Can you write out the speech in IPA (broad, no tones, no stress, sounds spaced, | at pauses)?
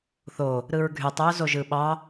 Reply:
θ o | ɾ ɯ ɹ ɡʱ y tˤ y ʊ̯ z o ʒ ɯ ɓ ɑ